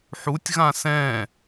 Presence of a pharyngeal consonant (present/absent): present